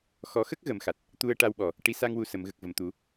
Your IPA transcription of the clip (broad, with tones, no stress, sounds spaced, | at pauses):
x ɔ˨˩˦ x ə˦˥ k̚ ɣ ə˨˩˦ m x a˨˩ t̚ | t̪ u˧ ə̯ ʈ a˧ w ɓ ɔ˨˩ | ʈ i˧˥ s a˧ ŋ w u˨˩ s ə˨˩˨ m ɣ ə˨˩ k̚ v ə˨˩ m t̪ u˨˩˦